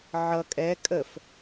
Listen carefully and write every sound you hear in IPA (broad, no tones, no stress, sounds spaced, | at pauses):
ʕ ʌ kʼ ɛ kʼ ə f